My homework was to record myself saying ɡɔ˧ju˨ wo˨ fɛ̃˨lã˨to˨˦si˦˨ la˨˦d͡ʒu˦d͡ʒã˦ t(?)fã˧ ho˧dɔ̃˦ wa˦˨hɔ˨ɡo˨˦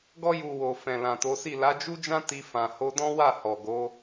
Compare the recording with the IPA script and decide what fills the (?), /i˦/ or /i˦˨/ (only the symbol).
i˦